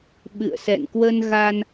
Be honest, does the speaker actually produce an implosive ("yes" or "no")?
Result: yes